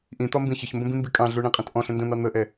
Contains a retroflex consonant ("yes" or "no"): yes